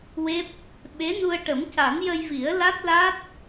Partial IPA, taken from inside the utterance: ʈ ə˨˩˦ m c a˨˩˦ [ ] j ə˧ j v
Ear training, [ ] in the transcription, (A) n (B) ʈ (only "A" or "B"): A